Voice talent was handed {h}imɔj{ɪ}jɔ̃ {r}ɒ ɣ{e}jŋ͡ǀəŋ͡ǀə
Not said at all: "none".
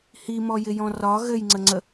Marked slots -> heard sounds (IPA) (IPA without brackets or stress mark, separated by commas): h, ɪ, r, ɘ